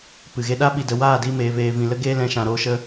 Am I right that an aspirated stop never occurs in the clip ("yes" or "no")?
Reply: yes